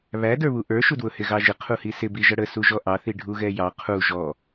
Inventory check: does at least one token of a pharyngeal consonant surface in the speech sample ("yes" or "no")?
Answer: no